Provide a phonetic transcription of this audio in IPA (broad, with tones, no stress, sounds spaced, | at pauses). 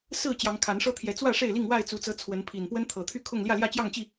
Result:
s ɹ̩˥˨ t͡ɕ j ɑ˨˦ ŋ kʰ a˨˦ n ʂ ɤ˦ t̪ʰ j ɛ˨˦ t͡s w ä˥˨ ʂ e˥˨ ɪ̯ l i˥˨ ŋ w a˥˨ ɪ̯ t͡s u˨˦ t͡s ɤ˨˦ t͡sʰ w ə˨˦ n pʰ i˨˩ n p w ə˦ n t̪ʰ ɤ˨˩ t̪ʰ y˥˨ kʰ ʊ˥˨ ŋ l j ä˥˨ l j ä˥˨ t͡ɕ j ɑ˥˨ ŋ t͡ɕ i˥˨